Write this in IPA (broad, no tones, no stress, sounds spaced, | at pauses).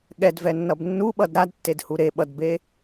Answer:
ɠ ɛ d v ɛ nː ʌ b nː u ɓ ʌ d ɾ a d tː e d h u ɾ e ɓ ʌ d b e